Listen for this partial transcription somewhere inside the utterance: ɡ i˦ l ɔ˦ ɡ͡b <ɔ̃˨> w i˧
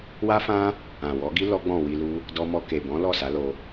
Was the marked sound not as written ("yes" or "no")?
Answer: yes